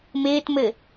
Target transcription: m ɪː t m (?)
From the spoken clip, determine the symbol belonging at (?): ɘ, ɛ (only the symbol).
ɘ